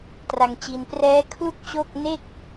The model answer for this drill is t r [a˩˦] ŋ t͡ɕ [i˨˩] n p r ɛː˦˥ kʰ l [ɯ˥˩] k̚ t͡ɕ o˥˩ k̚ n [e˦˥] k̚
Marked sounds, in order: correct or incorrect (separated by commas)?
incorrect, incorrect, incorrect, incorrect